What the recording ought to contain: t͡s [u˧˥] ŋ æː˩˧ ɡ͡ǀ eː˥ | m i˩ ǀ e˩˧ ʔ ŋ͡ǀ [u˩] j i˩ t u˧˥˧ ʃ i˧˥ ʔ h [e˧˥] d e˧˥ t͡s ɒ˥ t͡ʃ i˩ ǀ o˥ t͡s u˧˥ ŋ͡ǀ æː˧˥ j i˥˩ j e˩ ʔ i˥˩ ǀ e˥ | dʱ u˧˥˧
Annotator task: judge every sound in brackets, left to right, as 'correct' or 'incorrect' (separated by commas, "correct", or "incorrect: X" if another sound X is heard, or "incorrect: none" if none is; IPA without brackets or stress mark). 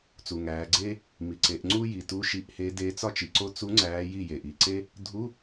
incorrect: u˩, incorrect: u˥, correct